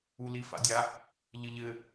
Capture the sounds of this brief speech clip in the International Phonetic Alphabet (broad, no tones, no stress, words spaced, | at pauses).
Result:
ulifa̰dʲa | ʎɘʎɘ